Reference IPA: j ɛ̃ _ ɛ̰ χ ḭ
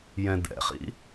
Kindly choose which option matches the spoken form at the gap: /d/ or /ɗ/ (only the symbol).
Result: d